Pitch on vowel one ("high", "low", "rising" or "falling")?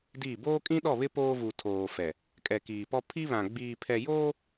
falling